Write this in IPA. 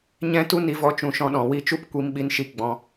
ɲ ɛ̃˦ t u˦ n i˧ v ɔ˧ t͡ʃ ũ˨ ʃ ɔ̃˧ ɗ ɔ̃˨ w i˦˨ t͡ʃ u˦ p kʷ i˧ m ɓ i˧ n ʃ i˧ ɡ͡b ɔ̃˧

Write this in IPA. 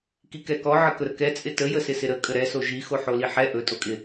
k i k ɛ k ɔ ʕ ə k ɵ ɾ ə k ɛ t͡sʼ ɪ t ə j ə s ɪ s ɪ ɾ ə kʼ ə ɾ ɛ s o ʒ i x o ħ o l i ħ ɛ ʔ ɵ tʼ o kʼ ɪ

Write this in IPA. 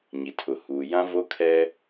ɲ i˨ tʰ ʊ˨ h uː˨ j ã˦ v o˦ kʰ ɛ˦

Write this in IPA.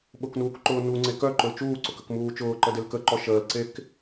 ɓ ʊ k n uː k ǃ ʊː n u ŋ͡ǀ e k œ ǃ ʊ l t͡ʃ uː ǀ ʊ k ə k m uː t͡ʃ ʊː ǃ ə d e l k ə ǃ ɔ ʃ əː l ǀ e k

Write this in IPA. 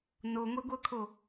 n o ŋʷ i ɡʷ ɤ kʰ o

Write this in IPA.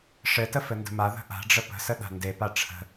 ʂ ɘ t ə f ɘ n d ə̤ m a ð ə̤ ʔ a̤ ɖ͡ʐ ə p ə̤ s ə ɗ a̤ n d e p a ʈ͡ʂʰ ə̤

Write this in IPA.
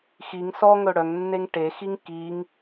x i ŋ s ɔ ŋ ɵ ɽ œ ŋ nː e ŋ ʈ e x i ŋ k i ŋ

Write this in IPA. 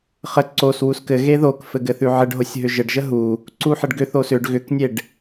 χ ə ǀ o s w u s k ɘ ɣ e ð o k f ɘ ɡ ɘ θ ʉ ʕ ɘ ɖ ɦ o sʲ ɦ ʏ ʒ ɘ ɖ ʒ ə ɦ u | ǀ u ħ ə ɖ ɡ ʏ θ o s ʏ ɖ ɣ ʏ k nʲ e ɖ

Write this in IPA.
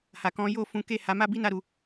h a˨ k ɔ̃˨˦ j o˦˨ f ũ˨˦ k e˦˨ h a˨˦ m a˦ b i˦ n a˧ ɾ u˨

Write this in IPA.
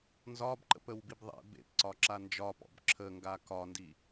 n z ɒ b ǃ ə̰ p ə w b i b ðˤ ḛ b ḛ p ǀ ɒ ǁ a n d͡ʒ ɒ p ɔ̰ b ǁʰ ə ŋ ɡ a k ɒ n d i

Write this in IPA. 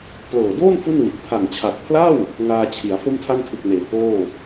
p l ɤː˨˩ d oː˥˩ n f u˥˩ n w i˨˩ t̚ pʰ a˨˩ ŋ t͡ɕʰ a˨˩ k̚ pʰ l a˥˩ w | ŋ aː˧ t͡ɕʰ i˩˦ a̯ f o˥˩ m tʰ a˥˩ n tʰ ɯ˨˩ k̚ n eː˩˦ k oː˥˩

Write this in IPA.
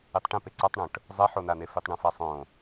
i tˤ ʈ ĩ p e ǀ a tˤ ɳ õ ʈ | zˤ ɛ ħ o n a n e f i tˤ ɳ ũ f a sˤ õ

